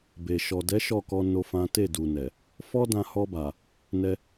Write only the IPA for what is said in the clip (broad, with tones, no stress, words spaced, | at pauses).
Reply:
be˨ ʃɔ˨dɛ˨˦ ʃɔ˦˨kɔ˧ no˦fã˦ te˦˨du˨nɛ˨ | fɔ˦dã˧hɔ˧ba˨ | nɛ˧